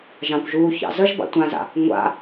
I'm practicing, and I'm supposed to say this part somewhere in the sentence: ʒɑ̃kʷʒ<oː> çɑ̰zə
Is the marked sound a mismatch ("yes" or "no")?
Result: yes